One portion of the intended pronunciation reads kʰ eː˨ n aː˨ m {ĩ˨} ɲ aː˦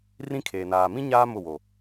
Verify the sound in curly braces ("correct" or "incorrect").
incorrect